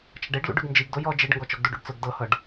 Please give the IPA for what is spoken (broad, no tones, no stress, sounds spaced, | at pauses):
t͡ʃ ɐ ɖ e ɖ l ṵ ɖ ʉ ɡ n d͡ʒ i ɡ d o j ɔ d͡ʒ e ɖ ŋ ɡ ɔ t͡ʃ ɔ ɡ d u ɖ ṵ ɖ t͡s ʊ ɡ d ɤ h ɤ ɖ